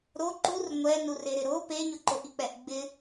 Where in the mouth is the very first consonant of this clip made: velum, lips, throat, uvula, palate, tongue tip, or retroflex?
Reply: tongue tip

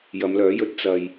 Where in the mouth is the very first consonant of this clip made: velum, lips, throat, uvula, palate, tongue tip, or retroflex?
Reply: palate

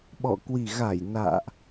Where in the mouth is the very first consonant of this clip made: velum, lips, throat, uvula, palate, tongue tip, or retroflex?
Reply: lips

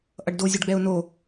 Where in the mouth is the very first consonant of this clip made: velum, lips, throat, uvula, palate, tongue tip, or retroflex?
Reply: throat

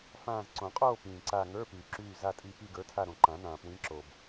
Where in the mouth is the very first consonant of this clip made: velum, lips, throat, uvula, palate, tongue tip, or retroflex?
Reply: lips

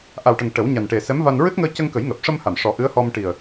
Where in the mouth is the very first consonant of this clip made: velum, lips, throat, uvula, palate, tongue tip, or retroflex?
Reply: throat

